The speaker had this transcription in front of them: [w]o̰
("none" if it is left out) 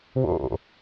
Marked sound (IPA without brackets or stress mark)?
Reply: w